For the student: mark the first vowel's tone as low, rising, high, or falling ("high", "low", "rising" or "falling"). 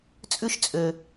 high